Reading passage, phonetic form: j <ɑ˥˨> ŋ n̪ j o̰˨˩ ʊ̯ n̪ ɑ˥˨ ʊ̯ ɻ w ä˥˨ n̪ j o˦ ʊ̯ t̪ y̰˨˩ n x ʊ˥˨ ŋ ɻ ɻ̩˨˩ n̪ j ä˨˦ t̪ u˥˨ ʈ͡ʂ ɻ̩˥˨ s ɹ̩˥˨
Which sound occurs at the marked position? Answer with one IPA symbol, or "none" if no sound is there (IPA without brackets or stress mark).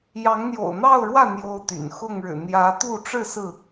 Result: ɑ˨˦